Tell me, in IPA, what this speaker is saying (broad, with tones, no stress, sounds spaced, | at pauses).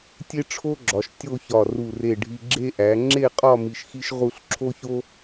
tʲ e˥ ʈ͡ʂʰ o˥ ɡ͡ǁ ɒ˩˧ ʃ tʲ o˥˧ ç ɒ˧˩ r u˧˩ r e˧˩ ɖʱ i˧ ɡ͡ǁ e˥ ʔ æ˩˧ ŋ͡ǁ e˥˧ qʼ ɒ˥˧ m i˧ ʃ x i˥ ʃ ʁ u˥˧ ɬ ǁʰ o˥ ç o˥